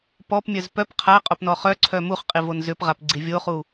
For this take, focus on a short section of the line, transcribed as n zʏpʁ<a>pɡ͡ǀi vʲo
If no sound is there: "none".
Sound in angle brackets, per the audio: a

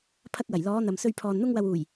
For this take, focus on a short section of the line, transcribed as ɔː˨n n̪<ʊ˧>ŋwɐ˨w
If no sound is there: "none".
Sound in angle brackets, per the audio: ʊ˧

